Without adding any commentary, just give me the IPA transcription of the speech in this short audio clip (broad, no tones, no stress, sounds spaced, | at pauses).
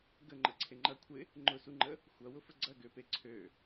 ɡ ə ŋ͡ǃ ə ǀʰ e ŋ͡ǃ ɐ kʷʰ ɪ | ŋ͡ǃ ʊ s u ŋ͡ǃ ə | xʷ ɐ w ʊ f ə ɡ͡ǀ ɐ ɡ ø p e ǀʰ ø